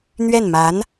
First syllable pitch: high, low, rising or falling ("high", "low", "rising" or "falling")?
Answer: falling